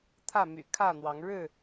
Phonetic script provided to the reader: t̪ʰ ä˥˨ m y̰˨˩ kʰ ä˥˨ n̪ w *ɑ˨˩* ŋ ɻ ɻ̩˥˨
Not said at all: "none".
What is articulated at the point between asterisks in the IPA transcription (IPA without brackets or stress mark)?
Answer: ɑ˨˦